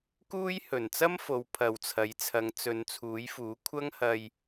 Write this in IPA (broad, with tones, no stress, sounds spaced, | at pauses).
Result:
k uː˥ j h ɵ˨˩ n t͡s ɐ˥ m f o˨˧ w pʰ ɐ˨ w t͡sʰ ɐ˨˥ j t͡sʰ ɐ˨˧ ŋ t͡s ɵ˨˧ n t͡sʰ uː˨˥ j f uː˨˥ kʷʰ ɐ˥ ŋ h ɐ˧ j